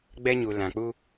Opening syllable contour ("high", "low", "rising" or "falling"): high